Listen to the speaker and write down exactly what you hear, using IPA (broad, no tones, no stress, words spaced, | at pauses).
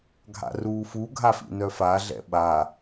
ɡʱa̰ruːfu ɡʱafḭnœfa ɮɛ̰ɓa